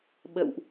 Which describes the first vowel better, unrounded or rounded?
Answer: unrounded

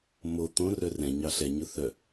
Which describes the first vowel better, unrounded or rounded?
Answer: rounded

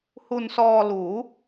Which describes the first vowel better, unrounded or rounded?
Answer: rounded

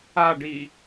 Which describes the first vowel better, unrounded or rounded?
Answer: unrounded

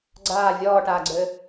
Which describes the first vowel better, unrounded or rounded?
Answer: unrounded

